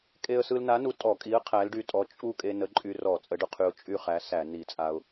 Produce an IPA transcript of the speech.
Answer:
kʼe˧ə̯sɯ˧lna˨˥nu˧ tʼɔ˧˩˧kʼi˨˥ə̯ qʰæ˨˥lɖy˧tʼɔ˨˥ t͡ʃʼu˥˨ kʼe˧nə˨˥ǃʼy˧rɔ˧˩˧ t͡sʼə˨˥ɖʊ˧qʰy˧ʊ̯ t͡ʃʼy˥˨χæ˨˥ sæ˧˩˧ ni˧˩˧t͡sʼa˧ʊ̯

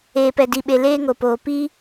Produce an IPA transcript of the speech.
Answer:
eː˨pɛ˨di˨ɓe˨ leː˦ŋo˨poː˨ pi˦

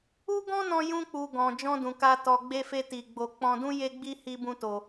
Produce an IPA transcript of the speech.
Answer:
u˦ ɡɔ̃˦nɔ̃˧jũ˧k͡pu˨ ɡɔ̃˨ d͡ʒɔ̃˧dũ˨ka˧ tɔ˧ɡ͡be˦fe˦ ti˧ɡ͡bo˧ k͡pɔ̃˧dũ˦ je˦ɡ͡bi˦ hi˦bũ˦to˧

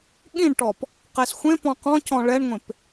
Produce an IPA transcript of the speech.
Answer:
ɠĩɳʈɔp | qesxʷẽ pɔ̃qɔ̃ cɔ̃ɭɛɳŋʷẽp

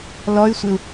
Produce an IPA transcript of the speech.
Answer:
lɔy̯sʷɪu̯

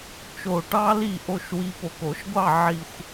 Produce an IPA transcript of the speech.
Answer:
t͡ʃo˨˩ʈɑ˦ li˥˨ʔo˥˨ʃ wi˦ po˨˩ko˧˩˧ʃɡʷɑ˥˨ ʕi˨˩xʷ

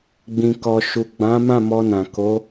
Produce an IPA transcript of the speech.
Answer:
ɡ͡bĩ˨kɔ˨ ʃu˨ɡ͡bã˨˦mã˦˨ mɔ˧nã˨ ko˨˦

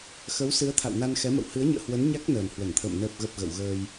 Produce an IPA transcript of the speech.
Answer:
xə˨˦wsɨ˨˦ə̯t̪ʰa̰˧˨w na˧nxɛ˨˦mə̰˧˨w hɨ˨˦ə̯ɲə̰ː˧˨hwə˨˦n ɲa˦˥k̚nəː˨˩n hwə˧˩nt̪ʰə̰ː˧˨m nəː˨˩p̚ɣə˨˩p̚ ɣə̰˧˨wɣəː˧j

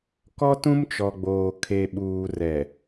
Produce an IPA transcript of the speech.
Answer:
kɔ˦tũ˦mt͡ʃɔ˨ɡ͡boː˨ kʰe˨ɓuː˨ rɛ˨

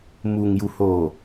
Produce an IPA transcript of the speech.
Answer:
muː˨ŋju˨ hoː˨

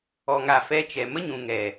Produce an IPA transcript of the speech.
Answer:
ɔ˨ŋa˨fɛ˧t͡ʃɛ˨ mə˦ɲũ˨ŋɛ˨

